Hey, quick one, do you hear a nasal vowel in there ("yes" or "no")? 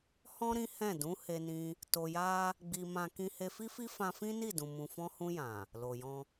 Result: yes